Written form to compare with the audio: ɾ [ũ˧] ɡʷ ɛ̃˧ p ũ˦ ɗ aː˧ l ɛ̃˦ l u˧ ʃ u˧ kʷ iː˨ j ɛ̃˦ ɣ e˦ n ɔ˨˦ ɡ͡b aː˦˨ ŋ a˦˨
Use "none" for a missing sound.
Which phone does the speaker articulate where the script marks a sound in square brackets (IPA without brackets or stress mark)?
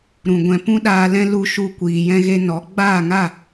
ũ˨